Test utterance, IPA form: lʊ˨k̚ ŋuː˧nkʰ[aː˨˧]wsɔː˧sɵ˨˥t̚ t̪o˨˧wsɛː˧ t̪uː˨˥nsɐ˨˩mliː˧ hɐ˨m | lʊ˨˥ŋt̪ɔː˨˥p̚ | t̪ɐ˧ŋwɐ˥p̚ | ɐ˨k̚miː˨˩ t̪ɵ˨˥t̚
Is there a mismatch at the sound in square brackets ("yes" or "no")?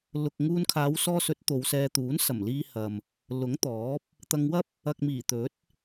no